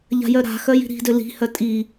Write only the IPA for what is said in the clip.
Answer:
ʎa̤jœɾa̤ xœji̤ɾi̤dø li̤hœ tʼi

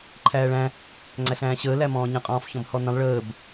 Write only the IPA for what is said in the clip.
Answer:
ǃʰæːɭæ̃ | ŋ͡ǀæɬæ̃ːɕəː læmɔ̃ːɲə̃ qʼɔ̃ːfçɔ̃bhɔnə̃lˠ ɭəːb

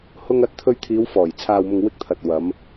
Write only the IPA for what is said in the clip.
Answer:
hʊ˧ŋɐ˨˥t̚t̪ʰɵ˧ɥ t̪ʰiː˨˧wfɔː˨˩j t͡sʰaː˨wmʊ˨ŋwɪ˧k̚ t̪ʰɐ˨t̚wɐ˨˧m

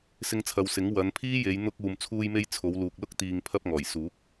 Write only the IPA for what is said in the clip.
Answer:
sɪ˧ŋt͡sʰɐ˨wsɪ˨˥ŋ wɐ˨˧n pʰiː˥je˨˧j n̪ʊ˧k̚ uː˨mt͡sʰuː˧jme˧j t͡sʰo˨˧wluː˨k̚lʊ˥k̚ t̪iː˨ŋpʰɐ˧p̚ ŋɔː˨˩jsuː˨˥k̚

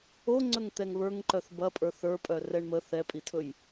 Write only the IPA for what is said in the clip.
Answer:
o ŋ͡ǀɵŋt̪ɛŋβə˞ŋǃœθ bɐpʼə˞θ ə˞pʼœ rɛɳmə θɛpʼitʰɵj

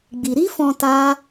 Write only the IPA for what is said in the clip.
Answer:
ɡ͡bi˧ ɾi˦fɔ̃˧ ta˦

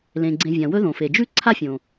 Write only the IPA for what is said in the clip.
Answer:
lẽ˩ ɡ͡ǀẽ˨vʲã˩ wɵ˦ðõ˩fe˩d͡ʒʉ˥ ǀʰa˥fʲõ˩

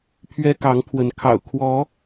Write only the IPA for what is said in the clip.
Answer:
pʰɥɛ˦kɑ˨˦ŋpʰwə˨˦n kʰɑ̰˨˩ʊ̯kʰwɔ˨˦

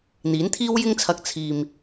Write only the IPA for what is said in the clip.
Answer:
n̪iː˨˥nt̪ʰiː˥wjɪ˥ŋt͡sʰɐ˧k̚ t͡sʰiː˨m

